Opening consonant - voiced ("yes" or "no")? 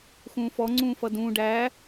no